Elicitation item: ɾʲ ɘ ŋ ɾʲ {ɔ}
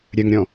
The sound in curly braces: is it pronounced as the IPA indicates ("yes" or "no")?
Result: no